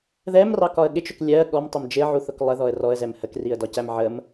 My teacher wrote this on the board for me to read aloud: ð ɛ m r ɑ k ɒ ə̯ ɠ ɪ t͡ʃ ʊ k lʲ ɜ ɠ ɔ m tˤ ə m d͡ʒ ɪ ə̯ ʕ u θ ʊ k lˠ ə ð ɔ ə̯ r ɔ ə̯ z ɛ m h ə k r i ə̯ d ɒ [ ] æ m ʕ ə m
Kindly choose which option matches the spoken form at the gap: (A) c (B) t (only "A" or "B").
A